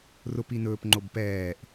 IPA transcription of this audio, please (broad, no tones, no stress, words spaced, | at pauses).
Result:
rʊpi nɵːpŋ͡ǃob pɛːʔ